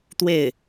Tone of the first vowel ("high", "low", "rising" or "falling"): falling